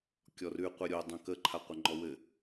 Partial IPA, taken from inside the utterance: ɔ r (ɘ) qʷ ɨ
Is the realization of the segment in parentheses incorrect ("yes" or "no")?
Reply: yes